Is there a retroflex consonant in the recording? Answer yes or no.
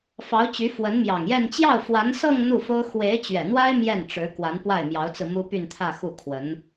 yes